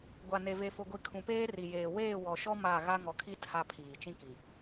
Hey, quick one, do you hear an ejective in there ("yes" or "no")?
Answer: no